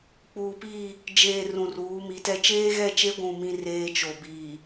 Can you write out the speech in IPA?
k͡p uː˨ p iː˦˨ | d͡ʒ eː˨ r ũ˨ r uː˨˦ m i˨˦ t ɛ˦ t͡ʃ eː˦ ɣ ɛ˦˨ t͡ʃ e˦ ɡʷ ũ˦˨ m ĩ˦ r eː˦ t͡ʃ o˨ b iː˨

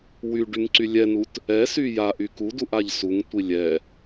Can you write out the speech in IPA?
w y ɖ y ŋ ǀ y lʲ ɛ n u t | ɛ s y j a ʔ y k u d u ʔ a ʎ s u ŋ tʷ i lʲ ɛ

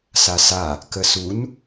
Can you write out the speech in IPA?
s a s a | k ə s u n

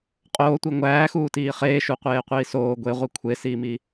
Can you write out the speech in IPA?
qʼ oː tʷ i ŋʷ æː x uː t iː χ eː ʃ u qʷ eː qʷ iː s oː ɡʷ e ʁʷ i kʷʰ e s iː m i

